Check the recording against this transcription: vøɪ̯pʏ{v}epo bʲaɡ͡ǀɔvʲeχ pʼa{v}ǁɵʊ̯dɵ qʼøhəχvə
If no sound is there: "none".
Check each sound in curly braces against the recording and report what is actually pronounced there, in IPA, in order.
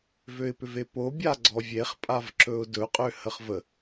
v, v

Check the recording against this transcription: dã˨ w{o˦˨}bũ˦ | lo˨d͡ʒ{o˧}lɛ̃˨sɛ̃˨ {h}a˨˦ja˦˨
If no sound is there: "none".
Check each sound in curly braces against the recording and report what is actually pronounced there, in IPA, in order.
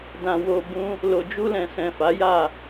o˧, u˧, f

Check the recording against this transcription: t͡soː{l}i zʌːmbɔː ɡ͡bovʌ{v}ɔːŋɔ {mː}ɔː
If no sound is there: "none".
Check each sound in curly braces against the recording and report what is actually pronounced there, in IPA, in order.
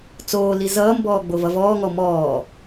l, v, m

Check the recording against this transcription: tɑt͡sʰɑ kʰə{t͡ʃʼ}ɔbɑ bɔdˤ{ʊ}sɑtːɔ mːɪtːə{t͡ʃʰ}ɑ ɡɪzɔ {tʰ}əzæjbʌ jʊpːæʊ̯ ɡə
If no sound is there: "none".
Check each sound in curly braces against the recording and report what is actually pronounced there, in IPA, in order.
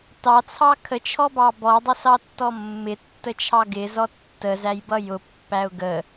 t͡ʃʰ, ʊ, t͡ʃʰ, tː

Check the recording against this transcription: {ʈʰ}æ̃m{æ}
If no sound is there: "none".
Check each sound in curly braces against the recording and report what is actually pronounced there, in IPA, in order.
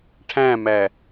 ʈʰ, æ

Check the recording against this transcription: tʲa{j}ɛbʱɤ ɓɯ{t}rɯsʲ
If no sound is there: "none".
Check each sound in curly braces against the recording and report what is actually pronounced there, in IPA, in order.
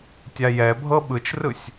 j, t͡ʃ

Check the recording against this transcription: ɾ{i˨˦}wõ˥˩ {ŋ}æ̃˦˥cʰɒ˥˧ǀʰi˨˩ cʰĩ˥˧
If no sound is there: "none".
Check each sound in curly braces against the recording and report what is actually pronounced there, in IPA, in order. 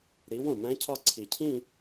i˨˦, m

